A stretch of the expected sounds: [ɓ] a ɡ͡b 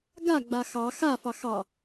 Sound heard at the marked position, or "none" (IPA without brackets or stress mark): ɡ